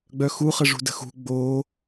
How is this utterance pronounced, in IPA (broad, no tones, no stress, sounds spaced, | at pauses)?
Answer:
ɡ͡b œ x u χ ə ʐ ṳ d ə̤ x ṳ ɡ͡b o